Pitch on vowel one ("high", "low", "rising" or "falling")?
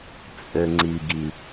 low